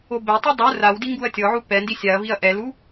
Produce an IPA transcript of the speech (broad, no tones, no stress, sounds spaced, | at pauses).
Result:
o b ɛ tˤ i dˤ u r a w d i ŋ ɡ u ɐ̯ tʲ ɔ ʕ u p ɛ n d i sʲ a ɐ̯ v i ɐ̯ ʔ ɛ l u